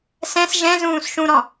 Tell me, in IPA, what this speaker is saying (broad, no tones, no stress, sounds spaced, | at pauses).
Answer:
s ɛ̃ s ʒ ɛ̃ z ũː s ʃ ũ ɾ ɔ̃